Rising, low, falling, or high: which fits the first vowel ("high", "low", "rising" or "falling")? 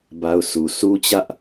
high